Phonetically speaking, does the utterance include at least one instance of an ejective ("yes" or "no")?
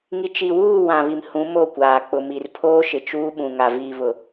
no